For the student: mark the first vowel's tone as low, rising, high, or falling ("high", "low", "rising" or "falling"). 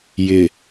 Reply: low